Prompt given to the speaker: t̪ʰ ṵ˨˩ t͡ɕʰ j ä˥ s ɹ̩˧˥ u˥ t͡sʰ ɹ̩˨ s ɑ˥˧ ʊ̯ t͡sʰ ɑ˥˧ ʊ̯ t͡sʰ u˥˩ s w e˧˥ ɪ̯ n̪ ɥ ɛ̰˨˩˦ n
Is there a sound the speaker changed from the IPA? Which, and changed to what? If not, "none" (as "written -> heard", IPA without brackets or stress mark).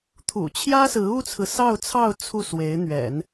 none